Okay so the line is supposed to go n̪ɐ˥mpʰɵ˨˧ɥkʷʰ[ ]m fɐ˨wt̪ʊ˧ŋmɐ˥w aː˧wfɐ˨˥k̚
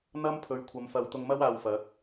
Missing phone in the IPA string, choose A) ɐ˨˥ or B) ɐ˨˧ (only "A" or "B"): B